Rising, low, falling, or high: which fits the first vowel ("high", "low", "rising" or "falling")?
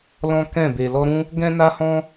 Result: high